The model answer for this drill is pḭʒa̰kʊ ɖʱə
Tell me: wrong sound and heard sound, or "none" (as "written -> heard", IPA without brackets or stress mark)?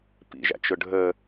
k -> t͡ʃ